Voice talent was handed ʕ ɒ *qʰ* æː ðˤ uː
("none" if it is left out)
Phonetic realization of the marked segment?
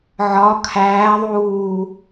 kʰ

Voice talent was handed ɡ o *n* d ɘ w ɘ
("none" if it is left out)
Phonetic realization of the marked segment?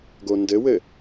n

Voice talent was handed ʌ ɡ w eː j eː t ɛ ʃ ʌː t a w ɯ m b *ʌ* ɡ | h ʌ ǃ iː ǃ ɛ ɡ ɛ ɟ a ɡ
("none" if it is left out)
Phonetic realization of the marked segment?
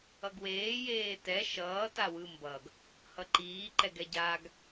ʌ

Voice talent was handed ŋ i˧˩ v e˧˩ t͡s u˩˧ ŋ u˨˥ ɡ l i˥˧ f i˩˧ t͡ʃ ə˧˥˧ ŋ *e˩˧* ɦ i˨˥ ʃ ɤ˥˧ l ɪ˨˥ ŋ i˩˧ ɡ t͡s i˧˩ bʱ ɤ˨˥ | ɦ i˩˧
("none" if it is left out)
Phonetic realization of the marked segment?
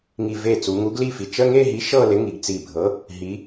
e˥˧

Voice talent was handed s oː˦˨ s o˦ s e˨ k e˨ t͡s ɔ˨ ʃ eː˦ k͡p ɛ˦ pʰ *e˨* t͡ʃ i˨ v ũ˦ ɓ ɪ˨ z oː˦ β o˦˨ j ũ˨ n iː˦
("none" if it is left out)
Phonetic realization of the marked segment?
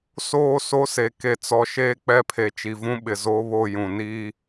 e˨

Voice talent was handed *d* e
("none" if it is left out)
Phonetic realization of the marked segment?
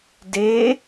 d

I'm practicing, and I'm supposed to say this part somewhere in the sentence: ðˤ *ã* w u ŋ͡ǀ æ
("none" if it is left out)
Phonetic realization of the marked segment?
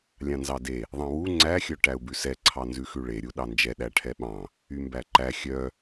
ɑ̃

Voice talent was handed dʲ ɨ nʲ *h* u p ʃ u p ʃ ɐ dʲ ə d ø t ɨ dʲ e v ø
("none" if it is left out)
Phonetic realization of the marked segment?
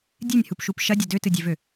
h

